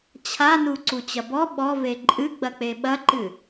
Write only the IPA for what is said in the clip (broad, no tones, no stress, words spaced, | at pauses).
t͡ɕʰanu ǀut͡ɕɐbɔ ɓɔve ǃʼɨɡ͡bɐk͡pe ɓɐǃɨ